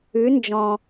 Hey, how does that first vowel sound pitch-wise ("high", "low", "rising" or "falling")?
rising